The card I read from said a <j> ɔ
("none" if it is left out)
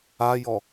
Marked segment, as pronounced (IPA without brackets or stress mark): j